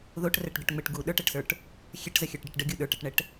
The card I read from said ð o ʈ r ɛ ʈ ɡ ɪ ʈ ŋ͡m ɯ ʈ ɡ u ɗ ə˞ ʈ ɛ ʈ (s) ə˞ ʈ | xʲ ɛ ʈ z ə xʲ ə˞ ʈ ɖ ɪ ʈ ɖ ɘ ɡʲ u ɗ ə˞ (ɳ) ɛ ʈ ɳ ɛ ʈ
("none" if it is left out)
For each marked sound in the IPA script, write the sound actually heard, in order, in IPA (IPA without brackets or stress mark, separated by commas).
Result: s, ʈ